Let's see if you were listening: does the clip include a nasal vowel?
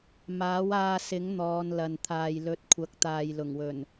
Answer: no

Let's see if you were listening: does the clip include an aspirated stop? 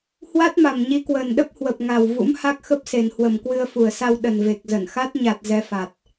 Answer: no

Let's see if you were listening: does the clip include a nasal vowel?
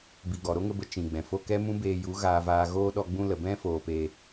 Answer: yes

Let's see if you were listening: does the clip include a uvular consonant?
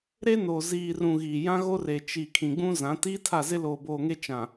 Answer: no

